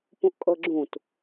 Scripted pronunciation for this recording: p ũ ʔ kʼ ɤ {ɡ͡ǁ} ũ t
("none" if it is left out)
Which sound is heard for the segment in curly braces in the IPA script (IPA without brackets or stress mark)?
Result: ɡ͡ǁ